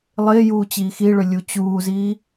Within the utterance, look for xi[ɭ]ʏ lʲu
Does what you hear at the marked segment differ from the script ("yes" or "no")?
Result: no